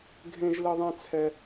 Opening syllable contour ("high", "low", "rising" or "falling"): high